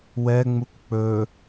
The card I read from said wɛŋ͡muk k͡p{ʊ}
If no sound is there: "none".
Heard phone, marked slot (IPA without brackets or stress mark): ɵ